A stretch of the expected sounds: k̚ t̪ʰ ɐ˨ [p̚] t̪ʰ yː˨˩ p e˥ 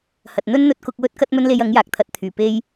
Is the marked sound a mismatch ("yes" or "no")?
yes